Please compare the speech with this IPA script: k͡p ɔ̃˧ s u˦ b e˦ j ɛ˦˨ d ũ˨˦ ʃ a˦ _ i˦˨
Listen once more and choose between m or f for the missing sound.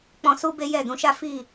f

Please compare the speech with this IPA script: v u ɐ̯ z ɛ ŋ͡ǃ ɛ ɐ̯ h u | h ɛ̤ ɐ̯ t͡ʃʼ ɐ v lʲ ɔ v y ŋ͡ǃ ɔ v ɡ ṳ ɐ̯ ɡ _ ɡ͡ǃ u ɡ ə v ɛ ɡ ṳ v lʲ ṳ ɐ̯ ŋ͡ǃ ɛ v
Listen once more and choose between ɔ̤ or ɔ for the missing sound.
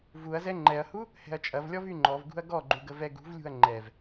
ɔ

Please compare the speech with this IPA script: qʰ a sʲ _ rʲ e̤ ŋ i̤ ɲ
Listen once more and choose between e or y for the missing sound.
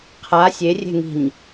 e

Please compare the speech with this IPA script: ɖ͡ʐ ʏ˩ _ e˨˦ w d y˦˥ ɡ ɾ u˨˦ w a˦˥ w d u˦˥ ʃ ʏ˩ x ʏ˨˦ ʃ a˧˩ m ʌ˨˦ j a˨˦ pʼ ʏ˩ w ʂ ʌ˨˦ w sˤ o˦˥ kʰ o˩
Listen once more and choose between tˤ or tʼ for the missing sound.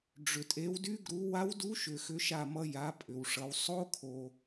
tʼ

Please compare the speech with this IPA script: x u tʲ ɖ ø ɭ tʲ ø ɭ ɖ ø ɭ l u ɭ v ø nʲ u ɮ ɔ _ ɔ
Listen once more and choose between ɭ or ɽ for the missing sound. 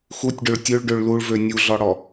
ɽ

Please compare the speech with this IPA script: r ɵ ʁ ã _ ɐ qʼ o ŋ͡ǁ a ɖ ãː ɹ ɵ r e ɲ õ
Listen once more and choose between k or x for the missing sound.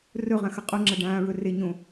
x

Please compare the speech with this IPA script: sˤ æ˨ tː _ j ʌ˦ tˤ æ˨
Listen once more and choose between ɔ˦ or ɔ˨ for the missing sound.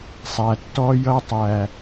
ɔ˦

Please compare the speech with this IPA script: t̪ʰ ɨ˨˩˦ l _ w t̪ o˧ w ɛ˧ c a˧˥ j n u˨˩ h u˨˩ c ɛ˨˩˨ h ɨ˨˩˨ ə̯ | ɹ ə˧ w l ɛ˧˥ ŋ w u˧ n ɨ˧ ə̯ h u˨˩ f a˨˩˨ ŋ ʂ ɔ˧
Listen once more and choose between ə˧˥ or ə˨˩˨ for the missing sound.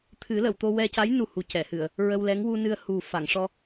ə˨˩˨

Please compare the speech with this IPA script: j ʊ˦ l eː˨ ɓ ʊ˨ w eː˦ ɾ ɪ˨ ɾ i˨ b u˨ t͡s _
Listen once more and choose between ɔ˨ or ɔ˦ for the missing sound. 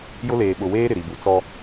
ɔ˦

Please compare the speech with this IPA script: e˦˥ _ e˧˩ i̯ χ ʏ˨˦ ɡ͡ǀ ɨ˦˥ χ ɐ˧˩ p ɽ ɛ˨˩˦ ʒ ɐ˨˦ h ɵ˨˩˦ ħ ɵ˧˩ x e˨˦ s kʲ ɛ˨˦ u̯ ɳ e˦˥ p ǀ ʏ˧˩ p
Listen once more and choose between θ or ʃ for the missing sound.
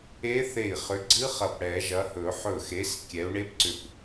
θ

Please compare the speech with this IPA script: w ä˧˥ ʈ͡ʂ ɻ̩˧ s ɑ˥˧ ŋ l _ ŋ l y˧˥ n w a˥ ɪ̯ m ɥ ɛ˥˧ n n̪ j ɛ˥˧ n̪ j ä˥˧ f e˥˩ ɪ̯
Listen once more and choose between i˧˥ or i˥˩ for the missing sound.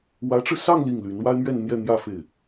i˥˩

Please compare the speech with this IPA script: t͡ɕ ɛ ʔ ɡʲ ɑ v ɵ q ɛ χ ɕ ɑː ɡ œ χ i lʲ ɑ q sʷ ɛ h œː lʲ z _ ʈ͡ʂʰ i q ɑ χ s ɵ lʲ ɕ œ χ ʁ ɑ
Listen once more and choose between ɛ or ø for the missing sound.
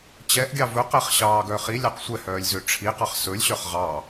ø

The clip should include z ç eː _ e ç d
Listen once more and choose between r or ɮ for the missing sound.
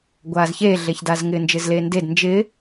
ɮ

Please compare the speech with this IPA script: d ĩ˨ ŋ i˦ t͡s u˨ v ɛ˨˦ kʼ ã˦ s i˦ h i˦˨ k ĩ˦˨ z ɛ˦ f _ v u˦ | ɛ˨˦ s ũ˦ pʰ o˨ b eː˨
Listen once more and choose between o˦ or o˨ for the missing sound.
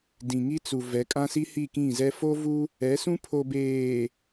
o˦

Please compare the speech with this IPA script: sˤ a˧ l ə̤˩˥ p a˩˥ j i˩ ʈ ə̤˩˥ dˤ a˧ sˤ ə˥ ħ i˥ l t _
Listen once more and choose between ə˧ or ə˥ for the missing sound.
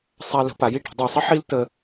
ə˧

